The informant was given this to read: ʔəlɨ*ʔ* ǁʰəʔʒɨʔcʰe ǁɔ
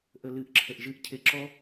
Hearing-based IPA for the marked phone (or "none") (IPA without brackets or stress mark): ʔ